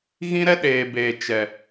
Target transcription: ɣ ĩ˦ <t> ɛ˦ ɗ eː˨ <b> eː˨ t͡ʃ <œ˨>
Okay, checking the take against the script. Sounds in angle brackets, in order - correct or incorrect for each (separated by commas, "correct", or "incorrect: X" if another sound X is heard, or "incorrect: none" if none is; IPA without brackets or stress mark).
incorrect: ɾ, correct, incorrect: ɛ˨